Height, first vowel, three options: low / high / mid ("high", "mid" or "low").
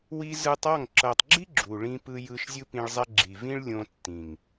high